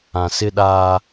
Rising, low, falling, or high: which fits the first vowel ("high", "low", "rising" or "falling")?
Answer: low